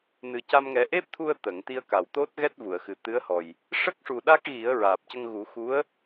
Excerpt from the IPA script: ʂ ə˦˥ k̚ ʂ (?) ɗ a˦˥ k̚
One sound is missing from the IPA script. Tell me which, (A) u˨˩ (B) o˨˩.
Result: A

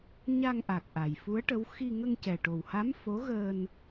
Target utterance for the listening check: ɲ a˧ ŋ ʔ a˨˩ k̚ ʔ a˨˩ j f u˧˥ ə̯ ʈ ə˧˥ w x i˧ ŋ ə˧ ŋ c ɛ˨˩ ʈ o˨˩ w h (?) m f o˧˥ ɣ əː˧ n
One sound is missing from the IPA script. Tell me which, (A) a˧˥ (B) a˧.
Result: A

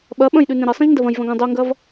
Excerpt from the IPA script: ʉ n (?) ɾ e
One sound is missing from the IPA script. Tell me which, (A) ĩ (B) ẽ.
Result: B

